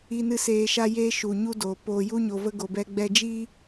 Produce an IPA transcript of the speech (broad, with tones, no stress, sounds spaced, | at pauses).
i˧ n ɨ˧ s eː˧ ʃ a˦ j eː˦ ʃ u˨ ɲ u˦ d oː˨ p oː˨ j u˦ ɲ o˧ v ə˦ ɡ o˨ b ɛ˧ ɡ͡b ɛ˧ d͡ʒ iː˦